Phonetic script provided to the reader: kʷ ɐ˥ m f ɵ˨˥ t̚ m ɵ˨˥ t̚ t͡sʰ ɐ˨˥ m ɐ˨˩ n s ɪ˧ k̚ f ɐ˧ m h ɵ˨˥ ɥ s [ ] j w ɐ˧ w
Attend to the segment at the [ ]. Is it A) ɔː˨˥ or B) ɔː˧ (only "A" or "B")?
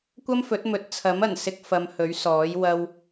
A